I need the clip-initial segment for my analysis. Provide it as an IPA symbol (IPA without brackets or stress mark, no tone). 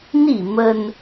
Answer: n